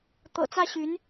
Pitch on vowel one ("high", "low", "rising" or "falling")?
low